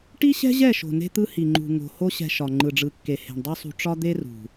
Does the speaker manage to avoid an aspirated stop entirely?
yes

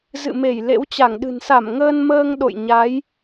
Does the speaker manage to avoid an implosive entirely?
no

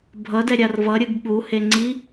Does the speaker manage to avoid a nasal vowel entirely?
yes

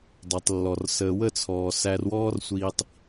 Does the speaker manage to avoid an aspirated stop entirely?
no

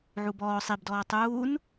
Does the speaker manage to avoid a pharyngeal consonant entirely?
no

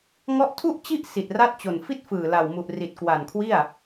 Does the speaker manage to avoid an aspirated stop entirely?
no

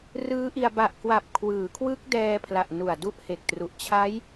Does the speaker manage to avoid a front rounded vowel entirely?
yes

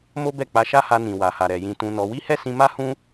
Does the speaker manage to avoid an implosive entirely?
yes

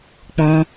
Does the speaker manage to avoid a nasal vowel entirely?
no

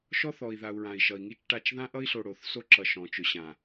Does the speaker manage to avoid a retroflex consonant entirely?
no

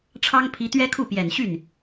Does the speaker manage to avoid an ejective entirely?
yes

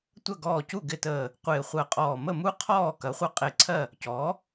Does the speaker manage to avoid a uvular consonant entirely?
no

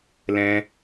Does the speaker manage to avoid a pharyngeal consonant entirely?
yes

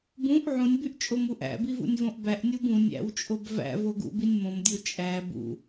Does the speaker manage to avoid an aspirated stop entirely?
yes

